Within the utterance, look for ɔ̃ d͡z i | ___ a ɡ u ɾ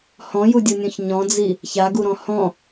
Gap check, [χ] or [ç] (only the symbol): ç